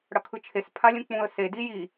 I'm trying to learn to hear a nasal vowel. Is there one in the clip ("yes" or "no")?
yes